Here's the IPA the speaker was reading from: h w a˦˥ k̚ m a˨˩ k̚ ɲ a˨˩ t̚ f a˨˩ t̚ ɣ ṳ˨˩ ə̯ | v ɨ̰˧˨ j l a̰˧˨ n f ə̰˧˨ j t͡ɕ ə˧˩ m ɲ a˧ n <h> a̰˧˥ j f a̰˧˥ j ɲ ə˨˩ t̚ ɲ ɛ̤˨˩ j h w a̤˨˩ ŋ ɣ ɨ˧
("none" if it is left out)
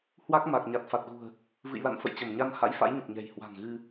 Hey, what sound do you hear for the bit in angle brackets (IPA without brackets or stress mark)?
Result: h